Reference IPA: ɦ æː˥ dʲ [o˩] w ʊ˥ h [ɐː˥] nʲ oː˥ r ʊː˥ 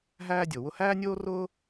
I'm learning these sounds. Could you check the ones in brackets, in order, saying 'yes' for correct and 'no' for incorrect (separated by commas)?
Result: yes, no